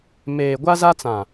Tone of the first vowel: low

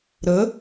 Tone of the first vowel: rising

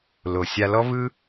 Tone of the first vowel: low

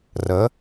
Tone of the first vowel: rising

